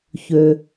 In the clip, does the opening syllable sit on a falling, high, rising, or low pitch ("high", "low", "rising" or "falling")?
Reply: low